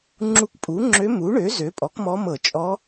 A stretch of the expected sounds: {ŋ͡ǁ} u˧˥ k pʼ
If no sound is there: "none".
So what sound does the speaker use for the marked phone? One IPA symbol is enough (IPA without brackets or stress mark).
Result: ŋ͡ǁ